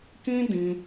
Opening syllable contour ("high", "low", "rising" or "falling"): high